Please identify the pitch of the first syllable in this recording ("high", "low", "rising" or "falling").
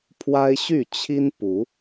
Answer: high